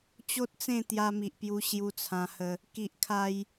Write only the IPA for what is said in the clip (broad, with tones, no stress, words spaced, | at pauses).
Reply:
t͡ɕo˦t̚t͡sẽ˥˧ t̪ja˧mi˨ʔpju˧ ɕju˧t͡sʰã˧hə˧ | ki˨ʔkʰa˧j